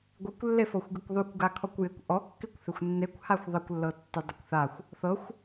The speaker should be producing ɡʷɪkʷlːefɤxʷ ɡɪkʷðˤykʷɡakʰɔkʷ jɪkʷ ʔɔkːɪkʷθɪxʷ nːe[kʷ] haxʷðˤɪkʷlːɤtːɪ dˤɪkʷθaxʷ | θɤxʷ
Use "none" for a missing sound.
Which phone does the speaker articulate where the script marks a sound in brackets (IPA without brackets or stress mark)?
kʷ